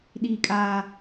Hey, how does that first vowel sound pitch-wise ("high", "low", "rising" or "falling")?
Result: high